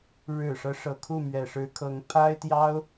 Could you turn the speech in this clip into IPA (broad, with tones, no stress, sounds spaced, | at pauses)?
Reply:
ɻ ɻ̩˨˩ ʂ ɤ˦ ʂ ɤ˨˩ kʰ u˥˩ m ɥ ɛ˨˩ ʂ ɻ̩˧˥ kʰ ɤ˧˥ ŋ pʰ a˥ ɪ̯ t̪ j ɑ˥ ʊ̯